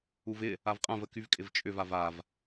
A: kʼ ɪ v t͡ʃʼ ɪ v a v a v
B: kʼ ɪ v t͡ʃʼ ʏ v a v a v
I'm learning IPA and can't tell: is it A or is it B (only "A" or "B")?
B